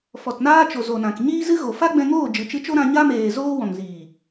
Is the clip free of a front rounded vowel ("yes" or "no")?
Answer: yes